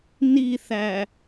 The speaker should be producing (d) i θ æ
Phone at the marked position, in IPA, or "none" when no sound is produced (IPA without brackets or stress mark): n